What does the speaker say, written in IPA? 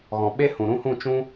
ɣ ɔ̃˨ ɓ e˦ h ũ˨ ɾ ũ˦ h ũ˦˨ t͡ʃ ũ˦

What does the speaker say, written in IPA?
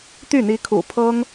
t̪ y˥˩ n̪ i˧˥ kʰ ṵ˨˩ pʰ ɤ˥ ŋ

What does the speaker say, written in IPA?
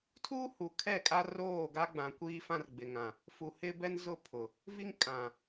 tʰ uː˦ h u˨ kʰ ɛ˦˨ kʼ a˦ r oː˦˨ ɡ a˦ ɡ͡b ã˨ kʷ iː˦ f ã˦ r ɡ͡b ɪ˨ ŋ ã˨ | f u˨ h ɪ˦ b ɛ˦ n z ʊ˦ pʰ ʊ˨ | v i˦ ŋ kʼ ã˨

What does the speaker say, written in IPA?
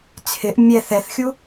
t͡sʰ ɪ ʔ mʲ ɛ θ ɛ θ xʲ u

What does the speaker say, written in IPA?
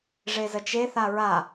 ʐ e z ə t͡ʃ e θ a ɹ a

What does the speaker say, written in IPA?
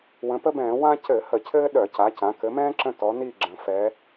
w ə̃˩˧ p ə˥ b ɛ̃ː˧˩˧ w ã˥ c ɘ˧˩˧ h ə˧˩˧ cʰ ɘː˥ ɗ œ˧˩˧ c a˩˧ c ã˩˧ k ɘ˩˧ m ɛ̃ː˥ ǁ ə̃˦˨ t ɔ˩˧ n i˦˨ ɡ͡ǁ ə̃˩˧ f ɛ˩˧

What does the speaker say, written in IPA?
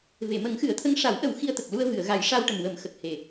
v e˨˩˨ m ə˨˩˦ ŋ x ɨ˨˩˦ ə̯ t̪ʰ ə˧˥ ŋ ʂ a˨˩˦ w ʔ ə˨˩˦ w x i˧ ə̯ t̪ ə˨˩ k̚ l u˧ ə̯ v ɨ˨˩˨ ə̯ ɣ a˨˩˦ j ʂ a˧ w ʈ ə˨˩ m w ə˨˩˦ m x ə˨˩ k̚ h e˨˩

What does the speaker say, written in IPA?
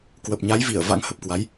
k w ə˨˩ p̚ ɲ a˨˦ j v i˧˩ ə̯ v a̰˧˥ ŋ h ə˨˩ p̚ k w a˨˦ j

